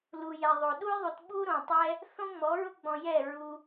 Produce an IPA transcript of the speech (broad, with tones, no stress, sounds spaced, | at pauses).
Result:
l u˨ j ɛ˨ ðˤ o˨ ɗ u˦ j ðˤ u˨ t ɓ u˦ ɾ õ˨ tˤ ɛ˦ | θ õ˦ ŋ͡m ɔ˨˦ ɹ ʊ˦ ɡ͡b ɔ̃˧ j ɛ˦˨ ɹ u˧